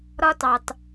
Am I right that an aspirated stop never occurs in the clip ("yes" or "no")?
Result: yes